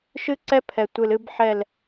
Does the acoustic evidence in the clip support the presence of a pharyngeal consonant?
yes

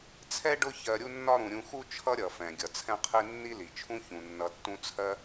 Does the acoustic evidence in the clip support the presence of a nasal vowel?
yes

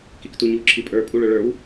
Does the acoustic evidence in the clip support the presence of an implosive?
no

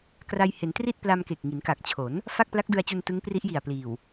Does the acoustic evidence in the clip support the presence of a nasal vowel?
no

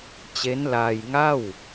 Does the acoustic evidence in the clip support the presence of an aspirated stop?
no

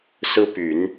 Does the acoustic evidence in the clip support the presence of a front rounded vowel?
yes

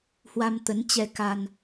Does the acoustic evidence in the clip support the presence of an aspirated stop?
no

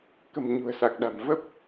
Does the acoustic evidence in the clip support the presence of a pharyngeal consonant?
no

